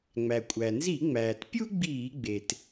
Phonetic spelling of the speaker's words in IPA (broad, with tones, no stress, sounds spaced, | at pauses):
ŋ͡m æ˩ kʷʼ æ˩ n z i˧˩˧ ŋ͡m æː˩ t pʲ u˥ ɡ͡b iː˧˩˧ ɡ͡b e˩ t